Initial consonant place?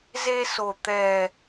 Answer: alveolar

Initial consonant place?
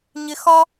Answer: palatal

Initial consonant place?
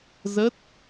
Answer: alveolar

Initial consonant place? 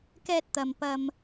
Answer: velar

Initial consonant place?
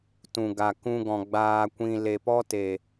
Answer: alveolar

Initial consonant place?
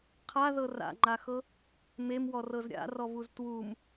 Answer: uvular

